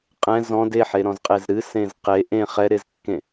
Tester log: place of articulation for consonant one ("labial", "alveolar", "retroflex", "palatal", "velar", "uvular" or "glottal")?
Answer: uvular